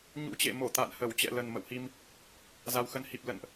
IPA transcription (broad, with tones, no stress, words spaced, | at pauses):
ɲṵ˧˥t͡ɕḛ˧˨ mo˧˩ t̪a̰˧˨nhə˧˩w t͡ɕɛ̰˧˨lə˨˩n mə̰˧˨whi˧m | za˨˩wxə˨˦nhi˨˩p̚ lə̰˧˨nʔ